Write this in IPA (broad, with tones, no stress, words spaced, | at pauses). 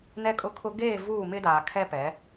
nɛ˦kʼʊ˦kʰʊ˦ ɡeː˦˨vuː˦˨mɪ˦ daː˨kʰɛ˦pɛ˨˦